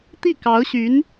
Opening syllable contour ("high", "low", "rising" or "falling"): falling